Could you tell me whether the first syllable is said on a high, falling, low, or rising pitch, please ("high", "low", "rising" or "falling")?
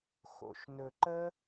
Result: low